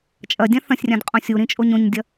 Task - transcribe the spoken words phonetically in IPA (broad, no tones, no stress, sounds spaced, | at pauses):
t͡ʃʼ ɐ dʲ ã θ ɐ̃ sʲ rʲ ã d qʼ õ sʲ u ɾ ĩ t͡ʃʼ o ɲ õ ɲ dʲ ɐ